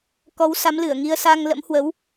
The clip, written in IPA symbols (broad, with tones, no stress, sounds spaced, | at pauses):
k ɔ˨˦ w s a˨˦ m l ɨ˧˩ ə̯ ŋ i˧ ə̯ s a˧ ŋ l ə̰˧˥ m h w ə˨˦ w